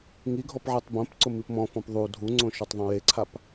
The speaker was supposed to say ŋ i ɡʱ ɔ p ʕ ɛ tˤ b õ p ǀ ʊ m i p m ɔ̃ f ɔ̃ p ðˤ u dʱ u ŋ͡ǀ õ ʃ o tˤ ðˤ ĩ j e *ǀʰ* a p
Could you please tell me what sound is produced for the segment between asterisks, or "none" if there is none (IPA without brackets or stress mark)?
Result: ǀʰ